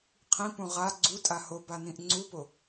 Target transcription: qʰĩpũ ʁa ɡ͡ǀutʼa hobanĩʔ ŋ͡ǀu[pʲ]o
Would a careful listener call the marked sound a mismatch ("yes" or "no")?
yes